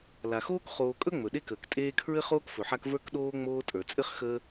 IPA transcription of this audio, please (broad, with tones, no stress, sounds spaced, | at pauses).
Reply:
l a˩ x oː˥ k χ oː˨ kʼ ɵ˥ ŋ͡m ɵ˩ ɗ e˦ k əː˩ k tʼ eː˦ kʰ ɹ ɘ˥ χ oː˥ k f ɵ˩ ħ a˦ k v ə˞˥ k ɗ oː˥ ŋ͡m oː˦ tʼ ə˞˩ t͡sʼ ɘ˥ χ x əː˥